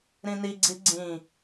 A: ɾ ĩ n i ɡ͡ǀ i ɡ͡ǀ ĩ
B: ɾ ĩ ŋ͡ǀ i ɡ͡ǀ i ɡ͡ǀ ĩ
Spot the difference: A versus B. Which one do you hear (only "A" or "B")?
A